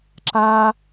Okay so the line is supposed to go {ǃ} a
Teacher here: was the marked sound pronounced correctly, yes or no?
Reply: no